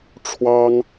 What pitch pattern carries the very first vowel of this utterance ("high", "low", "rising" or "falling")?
high